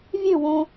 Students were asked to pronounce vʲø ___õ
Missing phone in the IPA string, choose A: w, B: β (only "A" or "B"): A